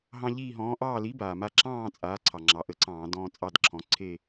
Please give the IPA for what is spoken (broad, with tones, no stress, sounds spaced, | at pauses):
ɦ ɑ̃˦ ʎ iː˦˨ ɦ ɔ̃ː˨˥ ʔ ɑː˦˨ l i˨˥ b aː˩ m a˦˨ ǁ ɑ̃ː˦˨ t͡sʼ aː˩˧ ǀʰ ɑ˩ ŋ͡ǁ ɑ˩˧ ʔ ə˨˥ ǀ ɑ̃ː˧˩˧ d ɔ̃ː˦ t͡sʼ ɑ˦˨ d ǁʰ ɔ̃˩˧ ǀʰ e˦˨